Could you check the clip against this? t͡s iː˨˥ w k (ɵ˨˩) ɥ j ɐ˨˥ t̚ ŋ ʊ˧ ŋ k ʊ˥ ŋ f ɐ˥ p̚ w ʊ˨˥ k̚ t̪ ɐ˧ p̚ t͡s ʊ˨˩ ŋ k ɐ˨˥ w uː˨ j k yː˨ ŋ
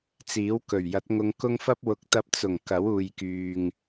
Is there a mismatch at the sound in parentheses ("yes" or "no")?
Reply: no